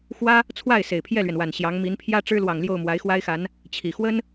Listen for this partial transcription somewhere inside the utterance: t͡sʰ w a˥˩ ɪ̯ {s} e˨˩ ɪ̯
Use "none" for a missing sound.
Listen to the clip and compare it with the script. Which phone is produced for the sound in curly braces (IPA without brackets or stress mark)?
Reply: s